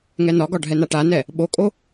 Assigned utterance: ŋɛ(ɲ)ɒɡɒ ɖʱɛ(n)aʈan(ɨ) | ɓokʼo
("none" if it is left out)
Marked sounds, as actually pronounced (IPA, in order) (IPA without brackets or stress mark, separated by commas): n, n, ɛ